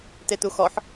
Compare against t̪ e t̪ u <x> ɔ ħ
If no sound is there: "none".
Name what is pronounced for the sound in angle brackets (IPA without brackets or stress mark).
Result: x